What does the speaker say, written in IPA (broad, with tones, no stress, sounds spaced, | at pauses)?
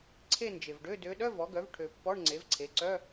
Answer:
ǀʰ e˥˧ n d͡ʒ e˨ v ɖ ø˧˥˧ d ø˧˥ ɗ œ˧˥˧ v ɔ˩˥ ɡ œ˩˥ v ʈʰ ø˨ pː ɔ˧˥˧ ɳ ŋ͡ǀ e˩˥ v ǀʰ e˩˥ ǀ œ˧˥˧